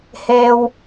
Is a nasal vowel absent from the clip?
yes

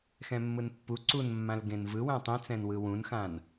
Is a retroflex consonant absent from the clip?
yes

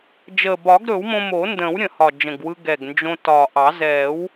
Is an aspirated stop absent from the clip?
yes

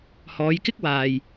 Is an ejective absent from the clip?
yes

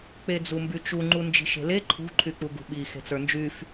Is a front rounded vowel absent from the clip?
no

